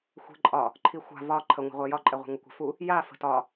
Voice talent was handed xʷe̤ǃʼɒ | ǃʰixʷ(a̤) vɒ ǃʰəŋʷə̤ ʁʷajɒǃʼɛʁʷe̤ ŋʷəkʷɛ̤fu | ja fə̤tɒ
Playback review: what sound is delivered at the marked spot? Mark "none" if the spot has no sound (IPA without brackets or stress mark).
a̤